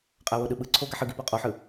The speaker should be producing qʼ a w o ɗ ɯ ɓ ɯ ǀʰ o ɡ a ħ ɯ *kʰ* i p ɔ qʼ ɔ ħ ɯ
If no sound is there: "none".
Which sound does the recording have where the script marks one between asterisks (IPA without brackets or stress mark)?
ɡ